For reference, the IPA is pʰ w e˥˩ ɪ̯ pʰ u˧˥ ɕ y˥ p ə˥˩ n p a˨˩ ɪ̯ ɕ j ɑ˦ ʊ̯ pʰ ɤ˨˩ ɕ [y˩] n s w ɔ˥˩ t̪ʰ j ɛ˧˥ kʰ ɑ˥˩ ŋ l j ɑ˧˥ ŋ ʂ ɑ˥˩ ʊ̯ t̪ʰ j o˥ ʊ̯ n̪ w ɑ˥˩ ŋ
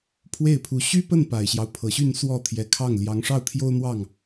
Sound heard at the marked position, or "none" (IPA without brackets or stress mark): y˥˧